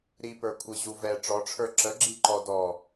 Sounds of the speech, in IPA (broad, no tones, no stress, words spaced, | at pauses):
ɾipə˞kʷʰi ʑuvɛ ʈ͡ʂɔʈ͡ʂʰə˞ ǁəɡ͡ǁi ǃɔdɔ